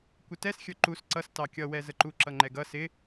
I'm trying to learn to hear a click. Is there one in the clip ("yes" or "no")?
yes